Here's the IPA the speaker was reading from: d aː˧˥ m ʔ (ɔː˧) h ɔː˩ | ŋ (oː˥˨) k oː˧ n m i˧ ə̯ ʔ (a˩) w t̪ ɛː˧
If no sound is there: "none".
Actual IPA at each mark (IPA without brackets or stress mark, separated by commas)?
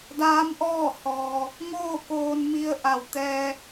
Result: ɔː˥˨, oː˥˨, a˩